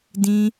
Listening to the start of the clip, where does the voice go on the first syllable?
high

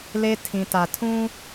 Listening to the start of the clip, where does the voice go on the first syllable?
high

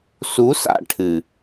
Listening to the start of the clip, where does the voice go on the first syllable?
rising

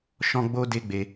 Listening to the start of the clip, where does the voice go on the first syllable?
high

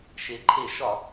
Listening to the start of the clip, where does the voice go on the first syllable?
rising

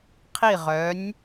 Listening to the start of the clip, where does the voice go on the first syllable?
falling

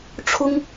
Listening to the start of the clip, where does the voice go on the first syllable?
high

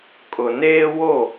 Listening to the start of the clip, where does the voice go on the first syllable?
low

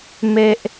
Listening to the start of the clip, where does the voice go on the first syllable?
high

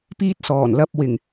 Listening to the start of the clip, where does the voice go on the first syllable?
high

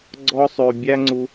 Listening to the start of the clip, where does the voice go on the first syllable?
high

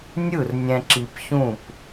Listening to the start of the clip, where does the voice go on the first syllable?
falling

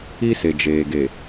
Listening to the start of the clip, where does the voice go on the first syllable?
high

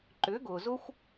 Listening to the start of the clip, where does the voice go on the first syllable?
rising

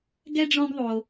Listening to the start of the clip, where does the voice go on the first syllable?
high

